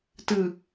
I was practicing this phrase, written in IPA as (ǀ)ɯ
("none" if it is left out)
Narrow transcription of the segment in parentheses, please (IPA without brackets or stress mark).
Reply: t